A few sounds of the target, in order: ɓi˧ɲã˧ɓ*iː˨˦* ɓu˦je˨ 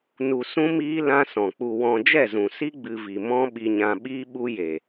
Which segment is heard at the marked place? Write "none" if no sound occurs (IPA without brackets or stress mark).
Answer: iː˦